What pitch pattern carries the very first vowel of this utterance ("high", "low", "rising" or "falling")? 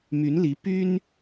rising